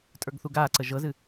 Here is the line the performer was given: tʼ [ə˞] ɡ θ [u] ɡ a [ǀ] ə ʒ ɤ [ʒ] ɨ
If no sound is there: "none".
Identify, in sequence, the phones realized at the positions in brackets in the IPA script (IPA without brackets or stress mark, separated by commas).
ə˞, u, ǀ, z